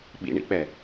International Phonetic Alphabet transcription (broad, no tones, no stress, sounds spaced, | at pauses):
ɓ ḭ ɳ ḭ k͡p ɛ